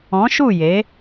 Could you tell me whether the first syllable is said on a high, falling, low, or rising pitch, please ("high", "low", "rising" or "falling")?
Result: rising